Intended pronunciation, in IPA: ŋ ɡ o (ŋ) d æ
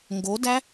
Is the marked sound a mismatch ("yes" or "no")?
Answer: yes